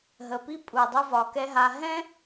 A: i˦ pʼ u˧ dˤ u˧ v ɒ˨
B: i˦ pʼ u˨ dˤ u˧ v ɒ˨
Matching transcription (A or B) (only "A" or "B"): B